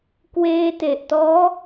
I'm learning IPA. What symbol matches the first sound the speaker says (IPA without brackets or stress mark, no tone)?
k